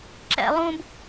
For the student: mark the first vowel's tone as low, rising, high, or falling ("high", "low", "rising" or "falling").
high